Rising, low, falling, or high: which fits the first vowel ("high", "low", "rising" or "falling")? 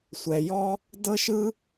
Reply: low